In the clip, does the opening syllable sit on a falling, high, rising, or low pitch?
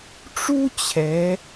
high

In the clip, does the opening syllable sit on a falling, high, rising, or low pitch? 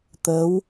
rising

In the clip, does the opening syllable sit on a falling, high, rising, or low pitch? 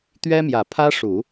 high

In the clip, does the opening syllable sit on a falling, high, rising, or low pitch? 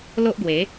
high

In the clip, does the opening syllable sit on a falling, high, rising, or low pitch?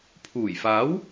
low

